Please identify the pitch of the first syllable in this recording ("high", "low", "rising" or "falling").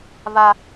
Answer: high